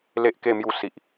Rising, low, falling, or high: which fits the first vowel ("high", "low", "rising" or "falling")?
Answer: high